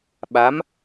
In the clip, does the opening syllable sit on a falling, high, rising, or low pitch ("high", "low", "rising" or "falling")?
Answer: rising